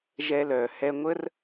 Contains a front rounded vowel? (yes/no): yes